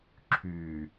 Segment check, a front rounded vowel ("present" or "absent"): present